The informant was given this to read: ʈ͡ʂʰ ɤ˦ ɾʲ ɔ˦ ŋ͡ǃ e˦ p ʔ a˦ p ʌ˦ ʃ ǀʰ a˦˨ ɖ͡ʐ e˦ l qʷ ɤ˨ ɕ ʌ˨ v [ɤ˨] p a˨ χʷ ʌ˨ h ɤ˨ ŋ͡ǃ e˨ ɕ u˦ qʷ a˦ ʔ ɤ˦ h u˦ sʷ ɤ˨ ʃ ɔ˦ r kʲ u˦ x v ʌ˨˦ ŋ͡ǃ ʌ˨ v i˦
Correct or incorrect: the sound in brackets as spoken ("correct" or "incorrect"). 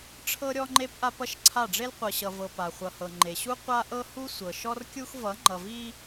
correct